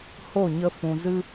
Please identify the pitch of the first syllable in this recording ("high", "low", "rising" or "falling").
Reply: falling